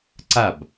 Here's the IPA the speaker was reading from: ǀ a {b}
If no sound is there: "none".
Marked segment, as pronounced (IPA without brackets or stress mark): b